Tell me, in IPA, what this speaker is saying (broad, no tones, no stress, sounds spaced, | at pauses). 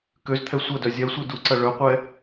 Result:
k ø z t̪ʰ ɛ sʷ ɐ d œ zʲ ɛ sʷ i d u ǀ ɐ ɭ œ qʷ ɛ